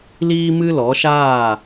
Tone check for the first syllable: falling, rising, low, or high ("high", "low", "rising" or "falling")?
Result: high